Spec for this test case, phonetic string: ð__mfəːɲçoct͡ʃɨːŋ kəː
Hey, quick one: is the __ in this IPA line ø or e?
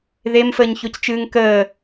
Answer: e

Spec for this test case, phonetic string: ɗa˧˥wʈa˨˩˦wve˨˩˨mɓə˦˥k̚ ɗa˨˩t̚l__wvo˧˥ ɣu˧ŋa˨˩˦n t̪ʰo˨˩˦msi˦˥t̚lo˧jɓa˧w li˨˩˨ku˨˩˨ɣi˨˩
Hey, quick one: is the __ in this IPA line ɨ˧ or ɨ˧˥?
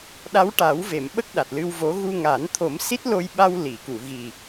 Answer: ɨ˧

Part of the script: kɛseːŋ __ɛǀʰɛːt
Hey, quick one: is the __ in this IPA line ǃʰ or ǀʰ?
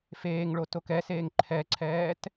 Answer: ǃʰ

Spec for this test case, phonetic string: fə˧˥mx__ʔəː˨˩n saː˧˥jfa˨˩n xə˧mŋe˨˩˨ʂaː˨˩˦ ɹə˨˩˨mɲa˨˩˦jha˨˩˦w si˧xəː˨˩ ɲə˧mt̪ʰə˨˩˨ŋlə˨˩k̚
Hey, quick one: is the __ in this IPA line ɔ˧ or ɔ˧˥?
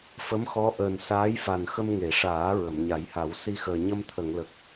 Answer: ɔ˧˥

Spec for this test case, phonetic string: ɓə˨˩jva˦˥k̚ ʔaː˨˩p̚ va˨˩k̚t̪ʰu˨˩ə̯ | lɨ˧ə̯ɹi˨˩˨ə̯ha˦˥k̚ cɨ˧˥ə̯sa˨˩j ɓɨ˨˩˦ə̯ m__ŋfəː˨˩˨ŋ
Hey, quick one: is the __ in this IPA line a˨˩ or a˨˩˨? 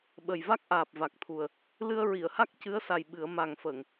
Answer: a˨˩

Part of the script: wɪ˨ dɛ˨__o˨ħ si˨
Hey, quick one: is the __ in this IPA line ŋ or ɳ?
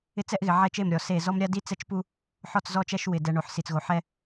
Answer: ɳ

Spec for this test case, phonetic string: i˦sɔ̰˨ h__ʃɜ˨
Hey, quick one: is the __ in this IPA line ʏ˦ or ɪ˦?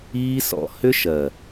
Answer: ʏ˦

